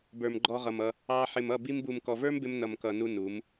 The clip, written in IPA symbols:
bə˞˨mɡ͡ǃɔ˧ʁʌ˨mʌ˧ | ɑ˧ ħɪ˨mʌ˦˨ bi˧mbu˨m kɔ˨və˞˦mbɪ˧m nʌ˨m kʌ˨nu˧ nu˨˦m

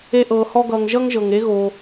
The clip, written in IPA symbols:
e˦ʔɤː˧hɔ˦ɡʌː˧ŋ ʒʌ˦ŋʒɤ˨ŋ e˦ɣo˧

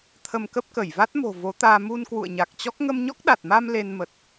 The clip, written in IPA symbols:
t̪ʰə˧mkə˦˥p̚kə˧˩j va˦˥t̚mo̤˨˩ vo˨˦t̪aː˧ mu˧n kwṵ˧˨ə̯ɲa˨˩k̚t͡ɕɔ˦˥k̚ ŋə˧mɲɔ˦˥k̚ɗa˨˩t̚ma˧m le˧n mə˨˩t̚

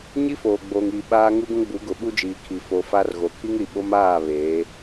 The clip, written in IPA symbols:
ɲi˦foː˨ɡ͡boː˨ŋiː˨ ɓaː˦ ŋu˦ɡũ˦ɡ͡bu˨˦ɡʊ˨ ɓu˦d͡ʒiː˨kʰi˨ fo˨ fa˦rɣo˨ kʰi˦ŋɾi˨ ɓo˦m aː˦˨ βeː˨˦

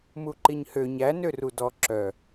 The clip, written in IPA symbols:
muǃiɲhø ɲænø rudɔ ǁœ

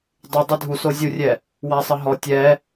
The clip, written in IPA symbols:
dˤu dˤɛdʱuso zʲurʲɛ | wasˤəɦɔ tʲɛ

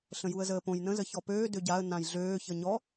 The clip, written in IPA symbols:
ɬə̃juə̯zəːpõj nə̃zə çɔpøː døɟaə̯ nãjɮøː çəɲɔ

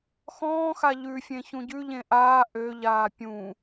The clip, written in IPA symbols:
xɔ̃ːxa ʎʉfʲẽ çũɟʉʎẽ ʔaː ʔøʎaː pʲũ

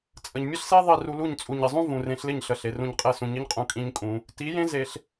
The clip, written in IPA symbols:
t͡sʼə˨ɲmʲə˦ɬse˦ ðˤi˦˨ru˧lu˦˨ɲ t͡sʼu˨ɲɪ˨zˤũ˦ vũ˨rẽ˧ɬlɪ˦˨ɲ ɬə˨ɬe˨ rũ˦˨ɲ qʼe˦˨ sũ˨ ɲɪ˦ɲqʼũ˧ kʼĩ˦ɲkʼũ˧ | ti˨˦jẽ˦ ze˧ɬ

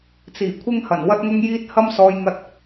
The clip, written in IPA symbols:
t͡siː˨˩kʷʰɪ˥ŋhɐ˨˩n wɐ˥t̚ŋʊ˥ŋjiː˥t̚ hɐ˥msɔː˧jŋɐ˧t̚

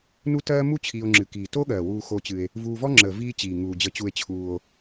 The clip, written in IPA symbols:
nu˦tɜː˦ mu˥ t͡ɕʰiː˨o̯ŋ͡ǁɨ˩kiː˩ to˥ɠɜː˩ wuː˨xo˨t͡ɕɨ˩e̯ | vuː˨vɔ˥ŋ͡ǁəː˩ viː˦t͡ɕiː˩ ŋuː˩d͡ʑə˨t͡ɕu˨e̯t͡ɕʰuː˩o̯

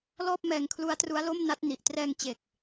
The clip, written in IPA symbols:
lɔː˥˩p̚mɛː˧ŋkʰlu˦˥a̯tru˦˥a̯ lo˥˩mna˦˥t̚ ni˨˩ʔ trɛː˧ŋt͡ɕe˨˩k̚

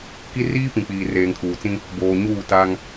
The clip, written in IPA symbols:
ki˦riː˦pĩ˨k͡piː˨ reː˨ŋkʰuː˨t͡sĩ˦ | boː˨ɲuː˦˨ ta˦ŋ

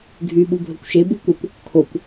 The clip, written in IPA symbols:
ɡʱy ɓubʱəkʷʃe bukʷəkʷ | kʰokʷ

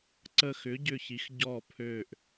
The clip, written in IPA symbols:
ǀə˦˨xʏː˨˥ɟʏ˦˨çi˨˥x ɟɔ˦˨pʰøː˦˨ʔ

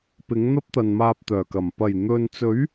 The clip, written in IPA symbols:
pɪ˨˥ŋn̪ɐ˥p̚t̪ɐ˨nmaː˧p̚ t̪œː˨˩kɐ˨˩m pɐ˨˩j n̪ɵ˨nt͡sɵ˨˥ɥ

